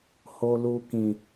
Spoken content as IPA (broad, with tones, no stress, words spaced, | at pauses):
ho˦lu˦kĩ˦